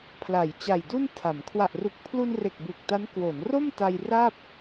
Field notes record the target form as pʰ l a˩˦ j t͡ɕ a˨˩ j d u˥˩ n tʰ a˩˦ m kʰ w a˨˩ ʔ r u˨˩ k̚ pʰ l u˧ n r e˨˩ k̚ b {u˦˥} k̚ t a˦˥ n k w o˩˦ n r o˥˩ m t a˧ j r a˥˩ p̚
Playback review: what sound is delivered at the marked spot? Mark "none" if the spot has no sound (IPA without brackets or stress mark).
u˨˩